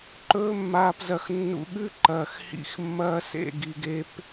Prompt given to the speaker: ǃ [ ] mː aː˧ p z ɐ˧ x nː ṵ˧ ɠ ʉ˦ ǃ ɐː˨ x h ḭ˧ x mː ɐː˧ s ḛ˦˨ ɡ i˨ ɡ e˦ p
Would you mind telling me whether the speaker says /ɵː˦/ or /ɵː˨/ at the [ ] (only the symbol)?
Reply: ɵː˦